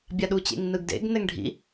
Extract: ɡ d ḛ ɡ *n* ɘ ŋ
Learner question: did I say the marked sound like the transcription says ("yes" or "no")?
yes